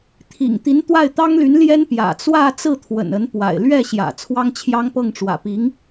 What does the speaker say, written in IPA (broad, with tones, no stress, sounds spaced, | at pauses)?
t̪ʰ ḭ˨˩ ŋ t̪ i˧˥ n t̪ w a˥˩ ɪ̯ t̪ ɑ˥ ŋ l y˧˥ n l j ɛ˥ n p j ä̰˨˩ t͡s w ä˥˧ t͡s ɹ̩˥˩ t̪ʰ w ə̰˨˩ n ə˧˥ n p w a̰˨˩ ɪ̯ l ɥ ɛ˥˩ ɕ j ä̰˨˩ t͡sʰ w ɑ˥ ŋ t͡ɕʰ j ɑ˥ ŋ p ɤ˥˩ ŋ ʈ͡ʂ w ä̰˨˩ p i˧˥ ŋ